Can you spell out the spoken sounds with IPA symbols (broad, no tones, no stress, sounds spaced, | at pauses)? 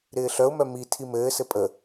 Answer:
ɾ ɪː ɬ œ ʊ̯ m œ m i tʰ i m ɘː s ɘ pʼ ə